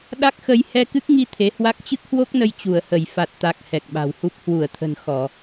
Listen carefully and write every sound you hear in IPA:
ɗ a˦˥ k̚ x ə˧ j h ɛ˧ k ɨ˦˥ k̚ ŋ i˧ t̪ʰ e˨˦ h w a˦˥ k̚ t͡ɕ ɨ˦˥ k̚ h w o˦˥ k̚ n ə˧ j t͡ɕ u˧˩ ə̯ h ə˧˩ j f a˨˩ t̚ t̪ a˨˩ k̚ h ɛ˨˩ k̚ ɓ a̤˨˩ w h u˦˥ p̚ h w u˧˩ ə̯ t̪ʰ ə̤˨˩ n x ɔ˧˩˨

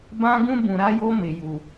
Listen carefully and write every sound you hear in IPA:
b ã˦ ɡ ũ˦ b ũ˨ ɾ a˦ j o˦ m ɪ˨ j u˨

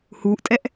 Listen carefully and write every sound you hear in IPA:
h uː ʔ tʼ ɛ ʔ

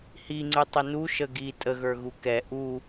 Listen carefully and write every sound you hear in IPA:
h i ŋ͡ǀ ɨ tˤ ʏ n u ʃ ə ɡ i tʼ ə ɣ ə˞ ɣ u k ɛ ʔ u

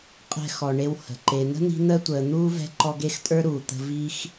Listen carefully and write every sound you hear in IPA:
qʼ ɛ̤˦ x ɔ˨ ɳ e˦ w h ə̤˩ ǃ e˨ n̪ ə̤˥ n̪ i̤˦ n̪ əː˥ tʷ əː˨ n̪ uː˥ v ɛ̤˦ ǃ ɔ˦ ɡ e˥ x tʼ ə˞˥ ɾ uː˩ t̪ ə̤˦ v i˥ x

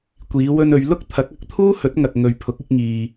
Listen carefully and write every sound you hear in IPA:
kʷ iː˨˧ w ɵ˧ n ɵ˨˧ ɥ l ʊ˥ k̚ t̪ʰ ɐ˨˥ k̚ ɐ˨˥ k̚ t̪ʰ uː˥ h ɵ˨˥ t̚ ŋ ɐ˨ k̚ ŋ ɵ˨ ɥ pʰ ʊ˨˥ k̚ ɪ˨˥ k̚ ŋ iː˨

